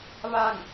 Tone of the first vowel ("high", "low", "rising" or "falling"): falling